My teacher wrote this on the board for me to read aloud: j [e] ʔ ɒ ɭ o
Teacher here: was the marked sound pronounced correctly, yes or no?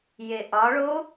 yes